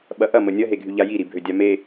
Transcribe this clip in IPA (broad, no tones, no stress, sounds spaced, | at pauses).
ɓ ɐ ʔ ɐ m ə nʲ ɐ ɦ e ɡʱ y ʎ a j i ɾ i bʱ ø dʲ a m e